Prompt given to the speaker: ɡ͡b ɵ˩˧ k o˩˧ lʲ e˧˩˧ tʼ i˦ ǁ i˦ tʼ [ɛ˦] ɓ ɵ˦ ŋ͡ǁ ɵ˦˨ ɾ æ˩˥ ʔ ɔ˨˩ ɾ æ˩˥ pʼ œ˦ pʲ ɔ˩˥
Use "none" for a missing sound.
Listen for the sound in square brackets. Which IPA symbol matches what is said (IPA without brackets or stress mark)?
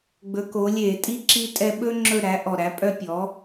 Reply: ɛ˦